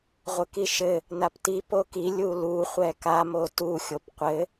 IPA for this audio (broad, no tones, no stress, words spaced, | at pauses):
ʁʷɘkiʃɘ | napti poki lʲulu χʷɛka motu xʲopqʷɘ